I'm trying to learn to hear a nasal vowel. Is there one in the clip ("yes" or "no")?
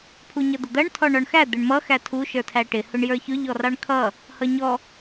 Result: no